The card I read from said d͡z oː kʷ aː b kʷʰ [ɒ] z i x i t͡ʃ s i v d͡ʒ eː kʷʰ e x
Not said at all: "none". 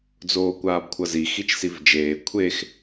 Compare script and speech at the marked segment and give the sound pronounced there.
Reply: ʌ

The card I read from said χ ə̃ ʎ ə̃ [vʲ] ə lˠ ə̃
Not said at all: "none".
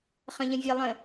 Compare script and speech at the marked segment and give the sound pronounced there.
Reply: vʲ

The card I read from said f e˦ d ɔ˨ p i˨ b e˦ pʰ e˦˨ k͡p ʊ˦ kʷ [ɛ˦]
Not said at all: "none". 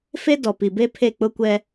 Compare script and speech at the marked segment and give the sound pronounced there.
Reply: ɛ˦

